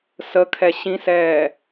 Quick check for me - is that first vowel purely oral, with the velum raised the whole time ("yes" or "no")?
yes